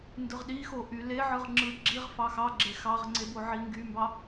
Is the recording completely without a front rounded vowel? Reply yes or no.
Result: no